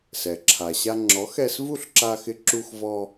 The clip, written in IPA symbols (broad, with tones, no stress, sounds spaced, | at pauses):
s ɛ˩ ǁʰ a˩ ɕ a˧ ŋ͡ǁ ɔ˩˥ x ɛ˧ s v u˥˩ ɬ ǁ a˧ x ɪ˧ ǁ u˧ x v ɔ˧